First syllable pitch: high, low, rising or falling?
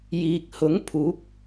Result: low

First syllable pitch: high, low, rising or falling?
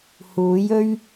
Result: rising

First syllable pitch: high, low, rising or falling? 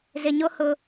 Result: low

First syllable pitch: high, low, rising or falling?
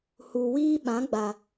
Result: low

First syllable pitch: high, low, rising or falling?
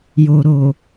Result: low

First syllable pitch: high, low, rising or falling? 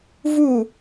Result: falling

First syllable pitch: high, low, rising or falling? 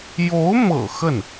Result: rising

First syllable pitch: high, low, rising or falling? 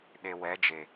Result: low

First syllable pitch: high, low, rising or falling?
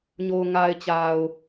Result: low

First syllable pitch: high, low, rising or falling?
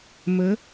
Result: rising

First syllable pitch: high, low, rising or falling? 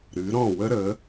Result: rising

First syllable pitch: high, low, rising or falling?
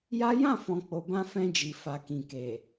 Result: high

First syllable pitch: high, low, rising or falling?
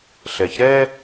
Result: low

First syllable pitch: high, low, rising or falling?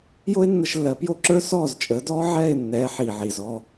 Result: high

